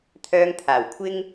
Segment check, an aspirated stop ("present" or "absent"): present